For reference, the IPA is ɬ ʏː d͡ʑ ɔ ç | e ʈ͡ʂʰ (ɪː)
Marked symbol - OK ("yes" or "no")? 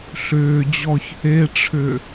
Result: no